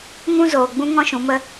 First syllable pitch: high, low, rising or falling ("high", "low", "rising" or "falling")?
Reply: high